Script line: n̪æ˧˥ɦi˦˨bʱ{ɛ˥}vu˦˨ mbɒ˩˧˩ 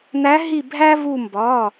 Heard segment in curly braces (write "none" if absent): æ˥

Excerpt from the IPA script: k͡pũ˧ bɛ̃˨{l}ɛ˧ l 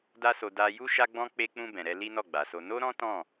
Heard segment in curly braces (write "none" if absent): ɾ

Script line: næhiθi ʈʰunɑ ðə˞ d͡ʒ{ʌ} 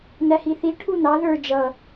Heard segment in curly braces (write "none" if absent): ʌ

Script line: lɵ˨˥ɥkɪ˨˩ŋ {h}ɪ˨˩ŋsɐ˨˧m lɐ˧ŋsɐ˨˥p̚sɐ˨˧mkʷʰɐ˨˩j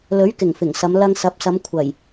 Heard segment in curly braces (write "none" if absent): f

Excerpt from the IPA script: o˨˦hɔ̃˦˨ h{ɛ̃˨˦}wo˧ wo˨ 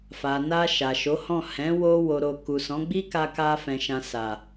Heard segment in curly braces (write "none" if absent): ɛ̃˨˦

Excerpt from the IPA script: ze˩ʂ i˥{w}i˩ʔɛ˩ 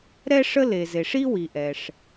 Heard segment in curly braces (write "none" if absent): w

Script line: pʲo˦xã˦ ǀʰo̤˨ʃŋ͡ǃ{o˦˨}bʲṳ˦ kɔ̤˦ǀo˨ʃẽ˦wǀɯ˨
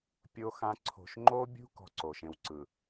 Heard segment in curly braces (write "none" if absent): o˦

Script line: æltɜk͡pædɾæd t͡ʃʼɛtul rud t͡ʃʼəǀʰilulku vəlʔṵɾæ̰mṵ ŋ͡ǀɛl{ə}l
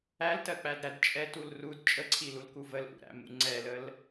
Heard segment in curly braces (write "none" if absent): ə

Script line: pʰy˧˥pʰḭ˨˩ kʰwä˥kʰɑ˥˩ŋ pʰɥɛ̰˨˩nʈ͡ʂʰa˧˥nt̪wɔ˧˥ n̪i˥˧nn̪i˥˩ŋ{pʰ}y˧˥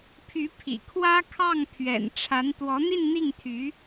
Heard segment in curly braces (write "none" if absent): t̪ʰ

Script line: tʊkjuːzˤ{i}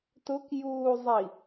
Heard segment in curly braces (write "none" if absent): i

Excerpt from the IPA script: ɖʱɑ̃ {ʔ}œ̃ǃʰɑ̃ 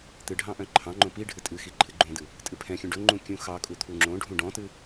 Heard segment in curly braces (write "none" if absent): ʔ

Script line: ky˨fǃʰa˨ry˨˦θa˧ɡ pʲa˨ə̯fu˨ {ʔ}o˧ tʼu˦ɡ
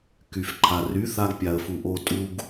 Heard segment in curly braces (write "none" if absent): ʔ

